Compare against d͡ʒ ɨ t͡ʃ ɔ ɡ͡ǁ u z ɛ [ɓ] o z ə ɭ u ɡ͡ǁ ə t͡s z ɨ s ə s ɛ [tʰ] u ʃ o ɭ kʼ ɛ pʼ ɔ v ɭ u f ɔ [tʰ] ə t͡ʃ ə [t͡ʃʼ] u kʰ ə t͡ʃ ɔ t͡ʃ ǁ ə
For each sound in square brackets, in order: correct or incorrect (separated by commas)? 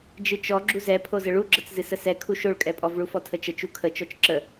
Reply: incorrect, incorrect, correct, incorrect